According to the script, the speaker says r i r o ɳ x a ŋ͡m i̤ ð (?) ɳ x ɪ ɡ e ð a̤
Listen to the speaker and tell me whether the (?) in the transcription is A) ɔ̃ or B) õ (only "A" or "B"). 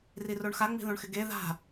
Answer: B